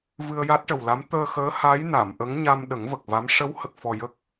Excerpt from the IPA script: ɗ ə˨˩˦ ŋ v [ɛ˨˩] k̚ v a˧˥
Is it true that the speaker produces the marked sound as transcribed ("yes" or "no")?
no